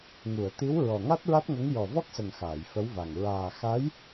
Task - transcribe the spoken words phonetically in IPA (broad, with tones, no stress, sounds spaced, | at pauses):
ŋ u˨˩˨ ə̯ t̪ i˧˥ w ɹ ɔ˨˩ ŋ a˦˥ t̚ ɹ a˦˥ t̚ ŋ ə˧˥ ŋ j ɔ˨˩ v ɔ˦˥ k̚ s ə˨˩ ŋ x aː˨˩˨ j f ə˧˥ w v a˨˩ ŋ ɹ aː˨˩ x a˧˥ j